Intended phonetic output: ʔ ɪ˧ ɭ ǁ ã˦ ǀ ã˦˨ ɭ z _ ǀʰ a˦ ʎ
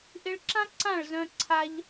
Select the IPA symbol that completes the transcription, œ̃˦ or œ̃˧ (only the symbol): œ̃˦